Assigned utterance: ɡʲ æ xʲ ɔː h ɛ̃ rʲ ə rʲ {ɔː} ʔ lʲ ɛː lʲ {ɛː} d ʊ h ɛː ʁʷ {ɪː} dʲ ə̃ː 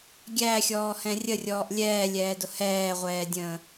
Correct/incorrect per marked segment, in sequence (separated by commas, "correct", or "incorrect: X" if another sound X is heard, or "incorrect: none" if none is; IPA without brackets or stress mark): correct, correct, incorrect: ɛː